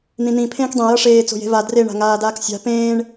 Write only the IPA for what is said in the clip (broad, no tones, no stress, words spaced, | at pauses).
n̪ĩn̪ĩ pʰẽːkdˤẽ jʌʂeː t͡so̤je̤va dre ɳa̤ŋaːdaːksʲa̤ pẽːɳ